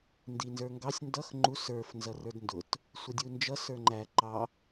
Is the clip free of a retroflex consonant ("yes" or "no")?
yes